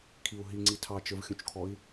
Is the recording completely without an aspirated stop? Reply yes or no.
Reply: no